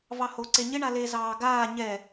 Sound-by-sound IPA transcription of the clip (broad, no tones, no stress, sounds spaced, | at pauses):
v ɑ h o ǀ e ɲ ɪ ɳ a l e z ɑː ɡ aː ɲ ɛ